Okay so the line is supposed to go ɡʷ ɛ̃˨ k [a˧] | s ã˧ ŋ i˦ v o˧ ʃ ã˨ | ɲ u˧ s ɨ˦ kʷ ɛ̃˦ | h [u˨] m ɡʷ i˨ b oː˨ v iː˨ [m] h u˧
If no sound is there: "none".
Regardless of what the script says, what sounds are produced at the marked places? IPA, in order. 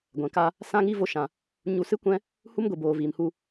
a˧, u˦, m

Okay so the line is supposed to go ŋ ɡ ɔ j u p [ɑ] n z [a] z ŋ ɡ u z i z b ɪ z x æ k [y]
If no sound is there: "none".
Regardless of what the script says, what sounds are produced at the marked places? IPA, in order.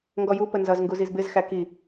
ə, ʌ, i

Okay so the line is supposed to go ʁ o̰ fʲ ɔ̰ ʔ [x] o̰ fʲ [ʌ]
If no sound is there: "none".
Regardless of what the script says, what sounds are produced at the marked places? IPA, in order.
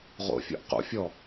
q, ɔ

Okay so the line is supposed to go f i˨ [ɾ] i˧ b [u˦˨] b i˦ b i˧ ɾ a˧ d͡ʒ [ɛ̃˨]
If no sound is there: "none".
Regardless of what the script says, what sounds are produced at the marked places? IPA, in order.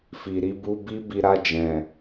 ɾ, u˧, ɛ̃˨

